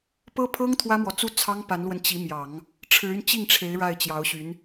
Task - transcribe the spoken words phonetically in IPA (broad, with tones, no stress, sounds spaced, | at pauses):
p ɤ˥ pʰ ɤ˥ ŋ t̪ʰ w ä˥ m w ɔ˨ t͡s u˥ t͡sʰ ɑ˥ ŋ p a˧˥ n l w ə˧ n t͡ɕ i˧˥ m j ɑ˨˩˦ ŋ | ʈ͡ʂʰ ɻ̩˧˥ y˧ n t͡ɕ i˥˩ ŋ ʈ͡ʂʰ e˧˥ ɪ̯ ɻ a˥˩ ɪ̯ t͡ɕ j ɑ˧˥ ʊ̯ ɕ y˧˥ n